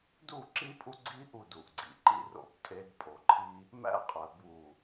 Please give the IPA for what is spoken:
d u˦˨ ǁ i˦ pʼ u˦ ɡ͡ǀ i˦ ʔ u˦˨ d u˨ ʔ ɡ͡ǀ ḭ˨ ǃ ḭ˦ r o̰˨ b tʼ e˦ d pʼ o˨ ǃʰ i˦ | m æ̰˦ qʼ æ˨ b w u˨

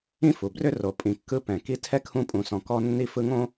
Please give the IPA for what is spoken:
ĩ˥ f u˩ b r ʏ˥ r o˩ pʼ ĩ˩ kː ɯ˧ p ɛ̃˩ k i˧ tʰ ɛ˥ kʰ ũ˧ pʼ ũ˩ s ɔ̃˩ k ɔ˧ nː i˧ f ɯ˧ ŋ õ˥

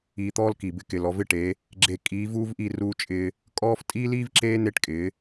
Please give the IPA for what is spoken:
iː˨ t̪ ɔː˦ l k i˨ b ɪ˦ k ɪ˨ l ɔ˨ v ɪ˦ ʈ e˨˦ | ɡ͡ǁ e˨ kʼ iː˨˦ v uː˦ v ʔ i˦˨ r uː˦ t͡ʃʼ ɪː˦ | kʼ ɔː˦ f tʼ iː˦ l iː˦ v ǁ eː˦ n e˦ ʈ kʼ ɪː˨˦

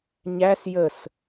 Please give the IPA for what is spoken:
ɲ æ s j ə s

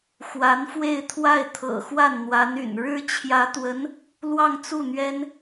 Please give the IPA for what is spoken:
x w a˧˥ n f w e˥˧ ɪ̯ t̪ʰ w a˥˩ ɪ̯ t̪ʰ ɤ̰˨˩ x w a˥˩ n n̪ w a˧˥ n y̰˨˩ n ɻ ɻ̩˥ t͡ɕʰ j ä˧˥ t̪ w ə˧˥ n | l w ɑ˥˧ ŋ t͡s u˥˩ n̪ ɥ ɛ˥ n

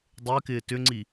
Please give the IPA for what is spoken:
dˤ ɪː k ɪː t ʏ ŋ͡ǀ i

